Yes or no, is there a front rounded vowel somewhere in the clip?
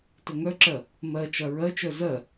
yes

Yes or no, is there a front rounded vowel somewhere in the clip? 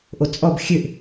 yes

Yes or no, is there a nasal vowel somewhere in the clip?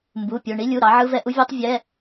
no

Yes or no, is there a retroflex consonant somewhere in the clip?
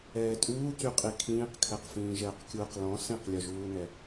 no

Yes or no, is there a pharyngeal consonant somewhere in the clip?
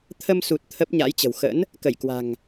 no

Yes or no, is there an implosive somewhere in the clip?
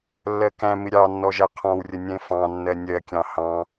no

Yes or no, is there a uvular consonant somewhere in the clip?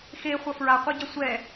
yes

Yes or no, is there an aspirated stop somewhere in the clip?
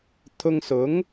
yes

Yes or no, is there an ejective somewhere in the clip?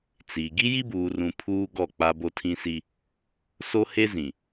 no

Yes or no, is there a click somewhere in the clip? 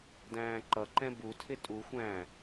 yes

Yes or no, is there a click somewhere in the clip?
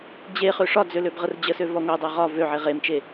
no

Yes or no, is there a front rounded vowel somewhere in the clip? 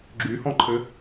yes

